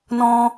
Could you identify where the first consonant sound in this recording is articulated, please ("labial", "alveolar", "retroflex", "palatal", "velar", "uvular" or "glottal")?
alveolar